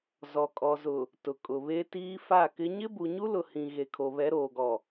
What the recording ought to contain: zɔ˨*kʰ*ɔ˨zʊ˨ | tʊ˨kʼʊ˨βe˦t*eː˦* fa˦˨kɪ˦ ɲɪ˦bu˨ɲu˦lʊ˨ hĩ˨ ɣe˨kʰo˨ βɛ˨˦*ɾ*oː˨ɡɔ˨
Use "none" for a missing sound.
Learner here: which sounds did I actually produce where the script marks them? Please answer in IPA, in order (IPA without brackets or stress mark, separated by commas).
kʼ, iː˦, ɾ